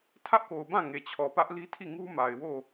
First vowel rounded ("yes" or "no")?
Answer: no